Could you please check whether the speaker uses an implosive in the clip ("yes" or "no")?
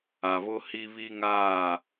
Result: no